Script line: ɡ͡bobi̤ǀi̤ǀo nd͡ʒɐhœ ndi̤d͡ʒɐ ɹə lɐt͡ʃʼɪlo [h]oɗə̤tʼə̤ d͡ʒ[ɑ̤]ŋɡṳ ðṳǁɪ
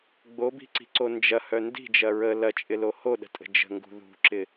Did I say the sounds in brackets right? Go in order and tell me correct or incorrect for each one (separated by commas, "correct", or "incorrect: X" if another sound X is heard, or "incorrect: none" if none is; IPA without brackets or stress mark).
correct, incorrect: ə̤